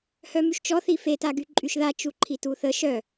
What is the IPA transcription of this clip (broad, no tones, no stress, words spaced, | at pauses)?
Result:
hœmyʃt͡ʃɔ θife taɡyǃʼyʃða t͡ʃuǃʰituθə ʃœ